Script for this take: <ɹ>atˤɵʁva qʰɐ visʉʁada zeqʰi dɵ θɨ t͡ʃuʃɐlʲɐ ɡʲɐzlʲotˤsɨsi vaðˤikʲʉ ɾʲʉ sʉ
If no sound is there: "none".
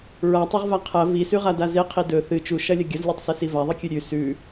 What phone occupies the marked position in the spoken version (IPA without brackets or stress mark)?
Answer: ɹ